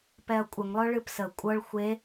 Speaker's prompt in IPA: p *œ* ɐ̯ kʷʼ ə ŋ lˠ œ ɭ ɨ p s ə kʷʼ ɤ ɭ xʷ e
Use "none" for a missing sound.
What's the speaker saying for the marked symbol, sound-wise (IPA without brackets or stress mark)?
ɛ